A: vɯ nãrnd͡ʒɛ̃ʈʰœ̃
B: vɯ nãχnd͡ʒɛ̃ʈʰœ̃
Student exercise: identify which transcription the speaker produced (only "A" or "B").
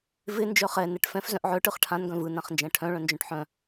B